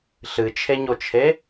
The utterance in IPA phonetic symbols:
ɬɨt͡ʃʰeɲot͡ʃʰe

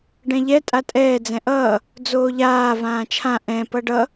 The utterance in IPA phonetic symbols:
ɖɛ̃ʎɛ tʼatʼɛː d͡zɛ̃ʔʌː | d͡zoːʎaː vãːt͡ʃʰã ʔɛ̃ pʌɖʌ

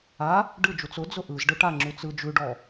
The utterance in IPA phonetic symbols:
a | ɖɯd͡ʒut͡s ʊd͡zʊ ʔɯz ɖɯʈaŋ͡ǁʉ t͡sɯ d͡ʒʉɖɔ

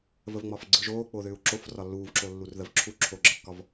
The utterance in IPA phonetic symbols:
vəvŋ͡mɒfɡ͡ǀɯʒoː k͡poðʏːu̯ǁof rɒlːuːvǁo lːurðəvǁʰu ǁʰoɡ͡ǁəkːɒv

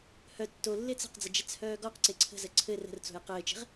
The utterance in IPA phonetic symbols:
hœ tːo lːet͡sə̤qd͡zə d͡ʒɛt͡shœːɡɔqǀe ǀʰə̤ zəǀʰɘ rə̤rt͡so̤j qɘːt͡ʃe̤ʁ

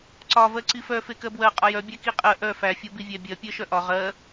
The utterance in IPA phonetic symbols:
ǀɒ vɜǀifœ fekɜbwɜ qʼɒjœ bʲækiqʼɜ ʔœ fæ fʲobivʲæbʲɜ pʲɜʃœʔɒ ʁɜ

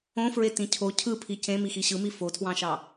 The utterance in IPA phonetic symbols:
õfɹetĩ cʰo cʰɯpʰi cẽmixi ɕɯmi fotʰwɑ̃ʃɑ

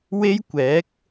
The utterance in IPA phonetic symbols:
we˥jkʷɛː˨˥k̚

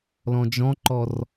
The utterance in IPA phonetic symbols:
lɔ̃d͡ʒɔ̃ǃɔr

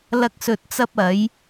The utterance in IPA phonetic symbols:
lɐ˥k̚sɵ˧t̚t͡sɐ˥p̚ ɐ˨˥j

